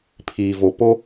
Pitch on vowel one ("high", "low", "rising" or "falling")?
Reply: low